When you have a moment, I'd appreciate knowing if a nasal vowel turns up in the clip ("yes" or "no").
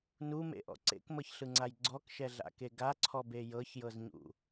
no